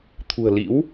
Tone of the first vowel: low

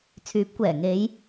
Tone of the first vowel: rising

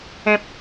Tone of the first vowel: low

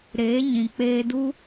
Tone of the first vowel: rising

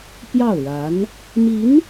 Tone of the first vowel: falling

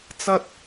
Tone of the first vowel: high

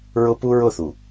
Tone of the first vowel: high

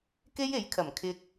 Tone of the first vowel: high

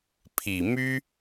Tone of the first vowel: low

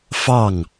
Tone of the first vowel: falling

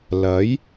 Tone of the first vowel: rising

